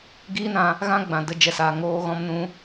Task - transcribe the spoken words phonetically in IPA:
ɡ iː˦ n ã˧ | ɣ ã˦ ɡ͡b ã˨ d ə˧ d͡ʒ ɛ˨ s aː˨ ŋ oː˧ ɣ ɔ̃˧ m n ũ˧

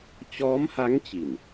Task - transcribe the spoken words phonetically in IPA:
t͡ɕ ɔː˦˥ m h a˦˥ ŋ t͡ɕ i˨˩ n

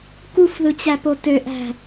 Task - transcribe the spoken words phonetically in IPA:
k u f ð ɯ t͡ɕ æ p o t ø ʔ æ̤

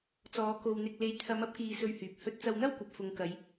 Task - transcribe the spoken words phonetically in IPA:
t͡s ɔː˨˧ k o˧ w n̪ ɪ˧ k̚ l e˨˧ j t̪ʰ ɐ˨˧ m ɐ˥ p̚ k iː˧ s ɵ˧ ɥ h yː˨ p̚ h ɵ˧ t̚ t͡s ɐ˧ w n̪ ɐ˥ w kʷ ɐ˨ p̚ f ʊ˨ ŋ k ɐ˨˧ j

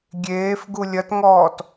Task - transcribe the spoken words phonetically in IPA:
ɡʲ eː f ɡ u lʲ ɐ t ŋ ɔː t

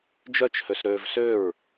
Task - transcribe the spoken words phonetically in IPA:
d͡ʒ œ t͡ʃ h ø s ɾ øː v s ø ɹ

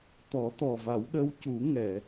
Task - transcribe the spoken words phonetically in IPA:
t̪ ɔ˨˩˦ t̪ ɔ˨˩ v a˨˩˦ w ɗ ə˧˥ w c u˨˩˦ ŋ ɛ˨˩˨

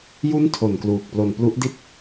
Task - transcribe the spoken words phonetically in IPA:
j u˦˥ n tʰ o˨˩ n k l uː˨˩ k̚ p l o˨˩ n p l u˦˥ ʔ d i˥˩ t̚

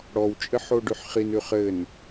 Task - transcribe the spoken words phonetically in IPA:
ɽ ɔ w t͡ʃʼ ɘ ħ o ɖ ʉ ħ χ i n ʉ χ ɘ n

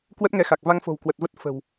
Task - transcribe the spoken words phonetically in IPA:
k w ə˦˥ t̚ ŋ ɛ˨˦ x a˨˩ k̚ v a˧ ŋ f o̤˨˩ w k w ə˨˩ t̚ v ə˦˥ t̚ f ə̤˨˩ w

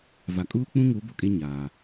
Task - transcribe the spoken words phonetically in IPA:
v a˨ kʼ uː˦ k͡p ũ˦ ŋ u˨˦ b o˦ kʼ e˦ ɲ aː˨

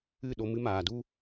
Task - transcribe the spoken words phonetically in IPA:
ɨ˦˨ ɗ o˧ m ɨ˧ m aː˨ d u˦

